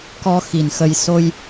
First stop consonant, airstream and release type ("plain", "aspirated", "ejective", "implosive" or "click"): plain